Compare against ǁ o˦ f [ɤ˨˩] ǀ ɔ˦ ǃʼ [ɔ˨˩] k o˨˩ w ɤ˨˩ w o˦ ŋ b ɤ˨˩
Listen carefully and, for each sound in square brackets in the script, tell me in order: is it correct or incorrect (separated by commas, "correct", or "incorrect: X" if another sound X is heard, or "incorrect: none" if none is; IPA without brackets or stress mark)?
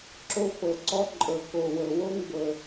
correct, incorrect: ɤ˨˩